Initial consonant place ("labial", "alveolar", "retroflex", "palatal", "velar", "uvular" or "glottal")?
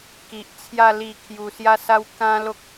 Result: velar